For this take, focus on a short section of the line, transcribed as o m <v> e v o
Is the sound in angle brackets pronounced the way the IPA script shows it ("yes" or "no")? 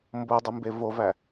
no